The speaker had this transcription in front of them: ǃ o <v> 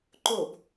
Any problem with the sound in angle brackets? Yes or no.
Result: yes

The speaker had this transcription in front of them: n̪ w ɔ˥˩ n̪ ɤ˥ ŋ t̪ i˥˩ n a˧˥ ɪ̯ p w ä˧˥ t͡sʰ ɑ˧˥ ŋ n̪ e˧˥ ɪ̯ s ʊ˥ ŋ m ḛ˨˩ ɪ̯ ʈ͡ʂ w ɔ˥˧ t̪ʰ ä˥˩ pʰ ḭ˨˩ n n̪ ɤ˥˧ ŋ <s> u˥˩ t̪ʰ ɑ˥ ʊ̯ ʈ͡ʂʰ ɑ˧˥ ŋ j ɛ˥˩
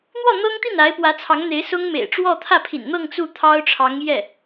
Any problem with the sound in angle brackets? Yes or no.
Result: yes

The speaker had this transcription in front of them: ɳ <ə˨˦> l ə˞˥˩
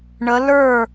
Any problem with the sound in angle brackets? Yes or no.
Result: no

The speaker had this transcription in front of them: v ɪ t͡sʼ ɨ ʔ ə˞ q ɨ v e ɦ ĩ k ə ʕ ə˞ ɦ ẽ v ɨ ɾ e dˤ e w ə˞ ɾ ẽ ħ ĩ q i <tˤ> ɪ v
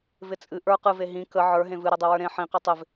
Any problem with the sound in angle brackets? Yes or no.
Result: no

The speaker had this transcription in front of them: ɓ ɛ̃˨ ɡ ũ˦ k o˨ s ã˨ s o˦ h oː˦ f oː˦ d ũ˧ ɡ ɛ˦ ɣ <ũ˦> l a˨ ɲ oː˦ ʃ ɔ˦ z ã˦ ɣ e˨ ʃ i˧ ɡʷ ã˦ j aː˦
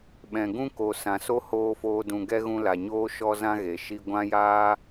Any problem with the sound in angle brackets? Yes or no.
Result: yes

